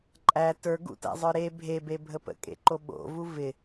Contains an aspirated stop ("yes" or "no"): no